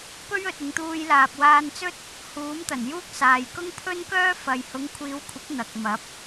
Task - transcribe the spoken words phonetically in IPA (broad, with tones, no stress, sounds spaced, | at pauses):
p ɵ˥ ɥ ɵ˨ t̚ ɪ˨˧ ŋ t̪ uː˧ j l aː˨ p̚ w aː˧ n t͡s ɵ˥ t̚ | h uː˨˥ m t̪ ɐ˨˩ n j uː˥ k̚ s aː˨ j k ʊ˥ ŋ pʰ ɵ˥ n k œː˥ f ɐ˨ j h ʊ˨˥ ŋ kʷʰ iː˨˧ w kʷʰ ɪ˨˥ k̚ n̪ ɐ˨ k̚ m ɐ˨˥ p̚